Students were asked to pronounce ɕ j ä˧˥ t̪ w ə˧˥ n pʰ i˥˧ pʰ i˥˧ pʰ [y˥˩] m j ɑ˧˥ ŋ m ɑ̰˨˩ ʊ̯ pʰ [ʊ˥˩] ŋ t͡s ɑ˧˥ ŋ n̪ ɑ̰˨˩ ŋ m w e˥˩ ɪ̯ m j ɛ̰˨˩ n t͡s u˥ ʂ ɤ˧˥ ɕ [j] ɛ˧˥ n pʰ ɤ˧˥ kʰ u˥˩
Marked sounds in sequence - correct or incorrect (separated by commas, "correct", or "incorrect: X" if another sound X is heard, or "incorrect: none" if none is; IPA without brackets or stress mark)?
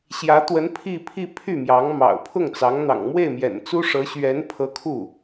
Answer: correct, correct, incorrect: ɥ